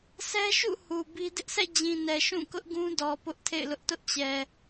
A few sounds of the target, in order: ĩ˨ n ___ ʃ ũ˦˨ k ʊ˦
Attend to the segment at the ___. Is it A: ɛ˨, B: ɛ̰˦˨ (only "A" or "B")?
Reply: A